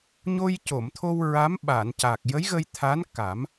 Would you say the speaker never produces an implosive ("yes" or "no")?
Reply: no